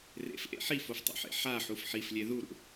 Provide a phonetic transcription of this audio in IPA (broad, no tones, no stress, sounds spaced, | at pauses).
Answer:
r ḛ f ʔ ḛ ħ i f o f tˤ o̰ ħ ḛ ħ a ħ u f ħ i f lʲ e ð u ɾ ṵ